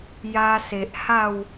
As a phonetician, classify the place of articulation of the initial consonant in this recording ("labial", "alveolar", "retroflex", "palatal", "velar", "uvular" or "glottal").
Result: palatal